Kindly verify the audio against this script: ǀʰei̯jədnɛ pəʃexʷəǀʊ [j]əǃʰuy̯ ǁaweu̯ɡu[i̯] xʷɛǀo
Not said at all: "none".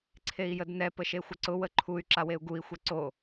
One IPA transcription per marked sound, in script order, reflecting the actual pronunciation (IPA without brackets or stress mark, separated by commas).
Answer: w, i̯